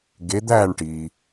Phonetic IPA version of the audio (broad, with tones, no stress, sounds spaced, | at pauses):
ɡ e˨˦ d̪ æː˦˨ ɳ ʈ iː˩